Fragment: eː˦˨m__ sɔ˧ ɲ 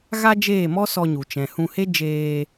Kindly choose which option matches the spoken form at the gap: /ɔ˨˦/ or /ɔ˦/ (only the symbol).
ɔ˦